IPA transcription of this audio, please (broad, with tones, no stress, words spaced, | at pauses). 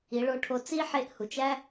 i˩˧ɭo˧ʈʰo˧ t͡si˥ ħe˧˥ʔhu˩t͡ʃæ˥